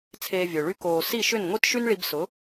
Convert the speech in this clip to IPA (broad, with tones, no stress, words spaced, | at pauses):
t͡sʰeː˧vʲø˨ɭy˦ koː˨ si˦˨ʃʏ˦˨n ŋʷi˦tʃy˦nɭi˧bsʊ˨˦